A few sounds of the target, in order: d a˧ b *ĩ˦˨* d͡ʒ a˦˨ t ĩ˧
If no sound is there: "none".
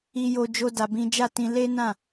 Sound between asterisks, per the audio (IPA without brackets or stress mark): ĩ˦